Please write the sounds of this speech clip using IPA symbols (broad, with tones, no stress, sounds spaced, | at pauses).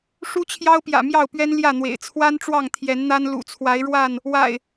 ʂ u˦ t͡ɕʰ j ɑ˦ ʊ̯ p j ä̰˨˩ m j ɑ˥˨ ʊ̯ p ɥ ɛ˦ n l j ä˥˨ n̪ w ḛ˨˩ ɪ̯ t͡sʰ w a˦ n ʈ͡ʂ w ɑ˥˨ ŋ t̪ʰ j ɛ˨˦ n n̪ a˦ n l ṵ˨˩ t͡sʰ w a˨˦ ɪ̯ ɻ w a˥˨ n | w a̰˨˩ ɪ̯